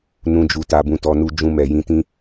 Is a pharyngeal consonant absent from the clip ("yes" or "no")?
yes